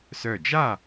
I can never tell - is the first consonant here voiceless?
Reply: yes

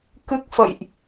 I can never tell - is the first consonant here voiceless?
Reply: yes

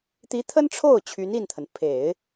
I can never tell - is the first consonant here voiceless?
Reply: yes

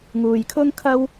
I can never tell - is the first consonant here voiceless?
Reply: no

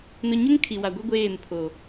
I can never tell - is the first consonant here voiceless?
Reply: no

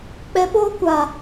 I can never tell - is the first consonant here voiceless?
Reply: yes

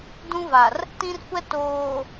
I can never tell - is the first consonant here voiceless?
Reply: no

